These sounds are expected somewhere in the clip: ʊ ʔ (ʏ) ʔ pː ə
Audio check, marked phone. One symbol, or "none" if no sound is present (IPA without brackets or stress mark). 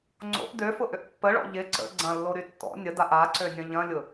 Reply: ʏ